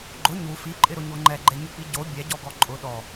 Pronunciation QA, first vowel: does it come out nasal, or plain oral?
oral